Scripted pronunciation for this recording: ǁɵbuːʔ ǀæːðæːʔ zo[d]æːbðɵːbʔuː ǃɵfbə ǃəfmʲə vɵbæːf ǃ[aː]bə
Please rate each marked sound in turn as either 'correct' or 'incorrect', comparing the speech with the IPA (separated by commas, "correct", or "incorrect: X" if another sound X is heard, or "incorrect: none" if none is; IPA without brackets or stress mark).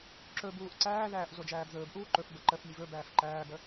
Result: incorrect: d͡ʒ, incorrect: æː